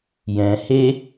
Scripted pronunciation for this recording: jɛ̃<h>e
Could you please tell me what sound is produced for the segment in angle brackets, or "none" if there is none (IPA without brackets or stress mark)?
h